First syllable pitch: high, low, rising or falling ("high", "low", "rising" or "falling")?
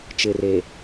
low